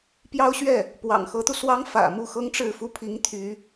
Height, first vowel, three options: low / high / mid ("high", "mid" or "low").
low